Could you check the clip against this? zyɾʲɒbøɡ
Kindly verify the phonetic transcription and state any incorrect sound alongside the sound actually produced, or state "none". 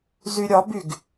ø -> y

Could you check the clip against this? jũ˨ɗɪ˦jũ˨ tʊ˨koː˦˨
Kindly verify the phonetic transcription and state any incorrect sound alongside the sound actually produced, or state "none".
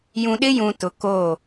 none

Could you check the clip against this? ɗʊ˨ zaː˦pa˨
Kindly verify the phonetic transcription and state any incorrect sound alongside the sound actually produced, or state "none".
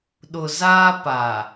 none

